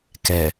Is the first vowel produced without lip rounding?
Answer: yes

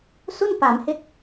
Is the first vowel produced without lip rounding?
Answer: no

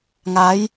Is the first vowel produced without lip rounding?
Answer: yes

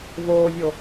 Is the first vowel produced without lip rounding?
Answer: no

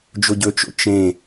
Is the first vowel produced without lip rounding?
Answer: no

